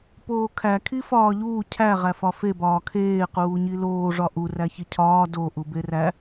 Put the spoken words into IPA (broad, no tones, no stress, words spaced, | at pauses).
poːkʰæ kʰifɒːʎuː cʰæ ʁæfɒfe bɒːkʰeː quːɲiloː ʐɒʔu ræçicʰɒː do ʔuberæ